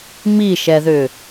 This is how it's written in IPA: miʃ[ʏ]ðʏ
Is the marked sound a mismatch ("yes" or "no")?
yes